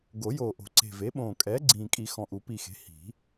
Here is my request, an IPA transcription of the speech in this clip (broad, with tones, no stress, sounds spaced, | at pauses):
ɡ o˨˩˦ j oː˨˩ ʔ o̤˨˩˦ ǀ e̤˨˩ v e˩˥ ɓ õː˨˩ kʼ ɛː˩˥ ɡ͡ǀ ĩː˨˩ kʼ i˨˩˦ x ɔ̃˨˩ ʔ u˨˩˦ p i˨˩ x e̤˩˥ h i̤˨˩˦